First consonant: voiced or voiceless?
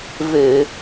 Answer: voiced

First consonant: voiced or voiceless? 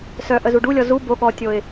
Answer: voiceless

